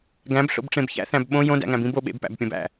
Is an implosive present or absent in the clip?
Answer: present